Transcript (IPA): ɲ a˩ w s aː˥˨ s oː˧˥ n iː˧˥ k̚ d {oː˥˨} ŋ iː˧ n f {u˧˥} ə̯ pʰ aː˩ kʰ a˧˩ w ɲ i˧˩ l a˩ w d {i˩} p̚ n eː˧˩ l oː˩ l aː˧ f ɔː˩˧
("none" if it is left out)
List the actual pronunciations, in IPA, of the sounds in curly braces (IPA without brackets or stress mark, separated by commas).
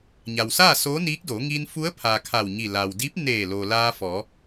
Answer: oː˩˧, u˧˥, i˧˥